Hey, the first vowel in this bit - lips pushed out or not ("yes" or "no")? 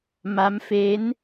no